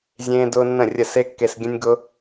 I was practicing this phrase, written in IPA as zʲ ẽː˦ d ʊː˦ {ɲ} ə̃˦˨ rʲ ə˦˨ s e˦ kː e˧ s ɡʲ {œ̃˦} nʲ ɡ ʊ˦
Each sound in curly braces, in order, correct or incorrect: incorrect: nː, incorrect: ə̃˦

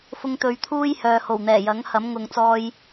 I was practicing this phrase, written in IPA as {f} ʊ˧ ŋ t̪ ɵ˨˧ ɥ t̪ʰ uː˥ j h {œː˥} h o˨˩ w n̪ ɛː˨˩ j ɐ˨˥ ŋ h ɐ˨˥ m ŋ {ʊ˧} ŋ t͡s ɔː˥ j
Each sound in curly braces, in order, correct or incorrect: correct, incorrect: œː˨, correct

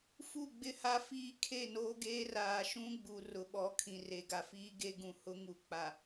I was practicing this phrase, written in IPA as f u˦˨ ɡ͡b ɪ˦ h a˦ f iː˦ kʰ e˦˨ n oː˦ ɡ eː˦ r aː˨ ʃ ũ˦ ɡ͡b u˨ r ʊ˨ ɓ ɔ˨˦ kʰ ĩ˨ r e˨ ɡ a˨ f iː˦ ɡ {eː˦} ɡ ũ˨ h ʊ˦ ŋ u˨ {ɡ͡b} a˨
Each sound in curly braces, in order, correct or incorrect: incorrect: e˦, incorrect: k͡p

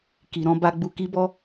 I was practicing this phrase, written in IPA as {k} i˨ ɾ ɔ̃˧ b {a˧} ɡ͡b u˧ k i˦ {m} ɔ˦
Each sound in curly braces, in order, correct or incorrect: correct, correct, incorrect: b

